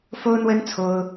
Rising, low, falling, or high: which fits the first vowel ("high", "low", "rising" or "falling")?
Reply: high